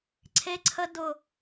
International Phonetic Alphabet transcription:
ǀʰe˦ǀʰə˦ dʊ˦˨

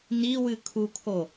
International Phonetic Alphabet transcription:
niwɨ kʰukʰo

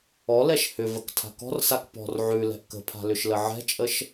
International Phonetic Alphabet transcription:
ɔlɛʃ hʏvək tʰa̤kɔ̤rsak pɔ̤r ʕʉlɛ̤ʔ kə̤pʰa̤ lʏʃləʕɛ̤t͡ʃʼəʃ

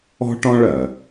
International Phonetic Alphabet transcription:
ɔ̤˥ʈɔ̃˥ɭɜ˩

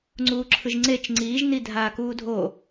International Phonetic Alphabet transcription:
ŋ͡ǀuːǁʰɯʒŋ͡ǀet͡ʃ ŋ͡ǀiːʒ nidʱaːkuːdʱo

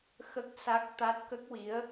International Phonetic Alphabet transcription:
xə˦˥k̚ sa˦˥k̚ t̪a˦˥t̚kə˦˥k̚wi˧˥ə̯

